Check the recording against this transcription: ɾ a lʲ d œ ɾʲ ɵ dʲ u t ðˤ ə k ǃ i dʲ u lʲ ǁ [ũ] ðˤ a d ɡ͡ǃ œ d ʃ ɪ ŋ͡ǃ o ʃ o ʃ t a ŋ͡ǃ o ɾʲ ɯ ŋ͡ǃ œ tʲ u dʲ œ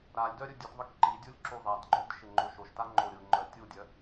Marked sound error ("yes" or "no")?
yes